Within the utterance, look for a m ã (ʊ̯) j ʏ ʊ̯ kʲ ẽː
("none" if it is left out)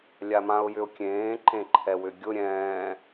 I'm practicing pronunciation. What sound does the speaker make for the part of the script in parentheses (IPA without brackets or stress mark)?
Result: ʊ̯